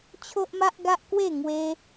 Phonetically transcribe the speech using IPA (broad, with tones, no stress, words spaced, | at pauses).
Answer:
t͡ɕʰo˦ʔma˦ʔɡa˦ʔkwe˥˧ ŋwe˦